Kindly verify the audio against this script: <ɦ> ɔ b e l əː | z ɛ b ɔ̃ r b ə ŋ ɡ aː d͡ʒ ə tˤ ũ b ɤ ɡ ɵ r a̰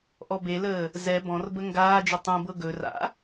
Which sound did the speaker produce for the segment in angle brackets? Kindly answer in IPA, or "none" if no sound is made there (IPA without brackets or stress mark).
ʔ